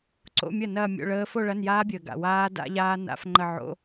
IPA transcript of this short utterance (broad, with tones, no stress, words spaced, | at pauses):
ǀo̰˧˥˧mʲɐ˥˩ nɐː˥˧mʲo̰˧˥˧ɭəː˦˥ fo˥˧ɭɐ˧˥˧njaː˦˥bʲəː˨ ɡa̰˨waː˦˥ da̰˦˥ʎaː˦˥ na̰˦˥fŋ͡ǃə˥˧ ʕo̰˧˥˧